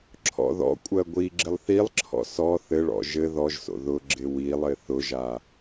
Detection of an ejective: present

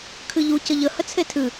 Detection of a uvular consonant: absent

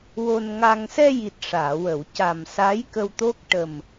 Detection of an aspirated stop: absent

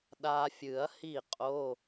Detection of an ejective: present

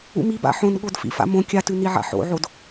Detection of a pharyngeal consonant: present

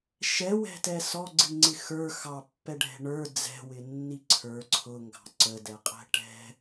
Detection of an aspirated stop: present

